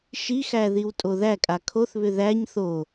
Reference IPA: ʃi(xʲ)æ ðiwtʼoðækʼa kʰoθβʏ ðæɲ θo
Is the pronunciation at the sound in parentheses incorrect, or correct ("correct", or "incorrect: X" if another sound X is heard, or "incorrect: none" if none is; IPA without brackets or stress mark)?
incorrect: x